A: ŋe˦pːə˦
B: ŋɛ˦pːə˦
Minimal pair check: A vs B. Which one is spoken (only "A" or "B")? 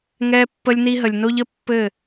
B